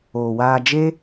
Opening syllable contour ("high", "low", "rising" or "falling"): low